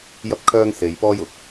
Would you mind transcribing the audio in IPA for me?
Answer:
j ɐ˥ p̚ kʰ œː˥ ŋ s e˧ j p ɔː˥ j ʊ˨˥ k̚

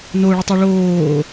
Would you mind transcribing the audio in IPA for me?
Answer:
n o ɭ ʏ tˤ o ɭ oː

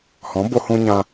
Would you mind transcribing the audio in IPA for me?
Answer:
h ɔ̃˨˦ b o˧ h ũ˧ ɲ ã˧

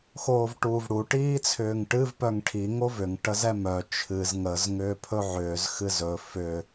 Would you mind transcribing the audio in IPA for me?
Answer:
x oː v ʈ uː v ɽ u ʈ iː t͡sʰ ʏː ŋ ʈ ɨ v p œ ŋ ʈʰ i ŋ o v ʏ ŋ ʈ ə z ɛ m œ t͡ʃʰ ɨ z ŋ ə z ŋ ʏː pʰ ɵ ʕ ʏː z x ɨ z ɵ f ʏ

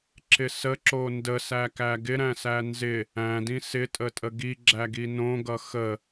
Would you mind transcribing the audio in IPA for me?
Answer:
ǁ ɪ s ə ǁ o n d ə s æ k æ ɡ ɪ ɾ æ̃ s æ n z ɪ | æ̃ d ĩ s ɪ tʼ ə tʼ ə ɡ i ɡ͡ǁ æ ɡ i n õ ɡ ʌ x ə

